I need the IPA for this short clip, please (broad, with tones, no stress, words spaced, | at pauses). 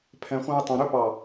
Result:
pʰɛ̃˧χʷæ̃˥ɪ̯ tˤœ̃˧ ɾɵ˥ pɑ˧˩